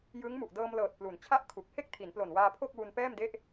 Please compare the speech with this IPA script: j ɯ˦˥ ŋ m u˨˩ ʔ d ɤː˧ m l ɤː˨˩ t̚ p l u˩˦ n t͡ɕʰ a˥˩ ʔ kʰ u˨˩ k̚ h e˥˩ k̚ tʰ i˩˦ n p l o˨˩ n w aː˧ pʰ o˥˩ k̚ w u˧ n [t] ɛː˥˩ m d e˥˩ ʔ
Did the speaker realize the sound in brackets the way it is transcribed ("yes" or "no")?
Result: no